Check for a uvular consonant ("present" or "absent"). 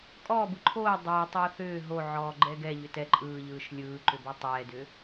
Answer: absent